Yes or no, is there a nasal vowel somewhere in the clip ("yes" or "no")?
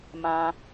yes